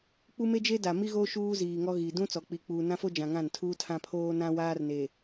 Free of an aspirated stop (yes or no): no